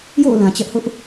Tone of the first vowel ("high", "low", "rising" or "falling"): falling